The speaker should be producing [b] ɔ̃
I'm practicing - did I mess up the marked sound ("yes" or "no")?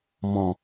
yes